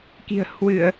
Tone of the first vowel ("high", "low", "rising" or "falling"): low